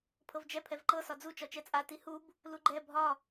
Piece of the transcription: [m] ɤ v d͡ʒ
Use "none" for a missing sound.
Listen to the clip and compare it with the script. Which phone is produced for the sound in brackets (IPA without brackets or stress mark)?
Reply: pʰ